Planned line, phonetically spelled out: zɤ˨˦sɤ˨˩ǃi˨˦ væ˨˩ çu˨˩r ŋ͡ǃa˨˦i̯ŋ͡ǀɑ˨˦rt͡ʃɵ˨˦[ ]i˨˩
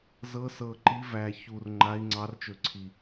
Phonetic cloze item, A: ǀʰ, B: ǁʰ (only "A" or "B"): A